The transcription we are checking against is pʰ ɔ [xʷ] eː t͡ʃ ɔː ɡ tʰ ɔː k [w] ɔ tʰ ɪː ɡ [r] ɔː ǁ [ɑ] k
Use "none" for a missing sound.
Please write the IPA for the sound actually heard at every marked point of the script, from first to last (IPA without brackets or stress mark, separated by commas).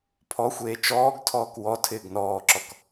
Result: xʷ, w, n, ɔ